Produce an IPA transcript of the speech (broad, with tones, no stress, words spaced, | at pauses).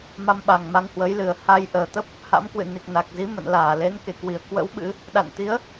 ma˧mɓa˨˩ŋma˧ŋhwə˨˦j lɨ˨˩ə̯ha˧j ʔəː˨˩t̪ə˦˥p̚ | ha̰˧˥mkwɨ̰˧˨ni˨˩k̚ na˨˩k̚zi˨˦ mə̰˧˨nlaː˧˩ le˨˦nke˧˩kwi˧˩ə̯kwə̰˧˥w ɓɨ̰˧˥ | ɗa̰˧˨nt̪i˨˦ə̯